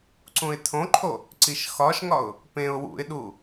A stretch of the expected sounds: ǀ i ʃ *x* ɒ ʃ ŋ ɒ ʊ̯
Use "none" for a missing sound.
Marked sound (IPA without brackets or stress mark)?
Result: x